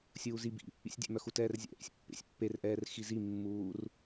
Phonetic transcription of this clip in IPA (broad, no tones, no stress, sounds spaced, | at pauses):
sʲ uː z i b ḭ | ḭ sʲ dʲ ɛ̰ m œ x u t ɛː r zʲ ɛ̰ ʔ ḭ sʲ pː ḛ sʲ pː e r ʔ ɛː r x i z i mː uː r